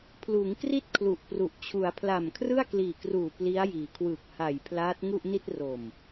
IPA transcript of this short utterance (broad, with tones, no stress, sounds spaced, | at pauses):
pʰ l uː˩˦ ŋ k r i˥˩ t̚ kʰ l u˨˩ ʔ p r u˨˩ ʔ t͡ɕʰ u˩˦ a̯ pʰ l a˨˩ m kʰ r ɯ˥˩ a̯ k l iː˨˩ k r uː˨˩ p l i˦˥ a̯ j iː˩˦ kʰ w ɯː˨˩ k̚ h a˨˩ j pʰ l aː˦˥ t̚ ŋ u˥˩ ʔ n i˥˩ t̚ r o˨˩ m